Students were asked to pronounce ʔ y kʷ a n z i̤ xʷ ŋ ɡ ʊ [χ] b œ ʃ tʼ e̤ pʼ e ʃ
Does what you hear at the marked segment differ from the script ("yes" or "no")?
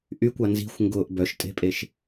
yes